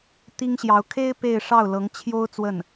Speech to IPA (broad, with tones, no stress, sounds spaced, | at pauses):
t̪ i˥ ŋ ɕ j ɑ˧˥ ʊ̯ kʰ e˥ ɪ̯ p e˥˧ ɪ̯ ʂ ɑ˥˩ ʊ̯ l ɤ˧˥ ŋ t͡ɕʰ j o˥ ʊ̯ t͡s w ə˥˩ n